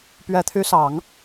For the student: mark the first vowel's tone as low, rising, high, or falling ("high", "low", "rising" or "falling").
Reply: low